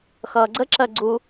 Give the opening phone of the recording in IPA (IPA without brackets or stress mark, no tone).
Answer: x